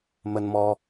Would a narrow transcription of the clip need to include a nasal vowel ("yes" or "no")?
no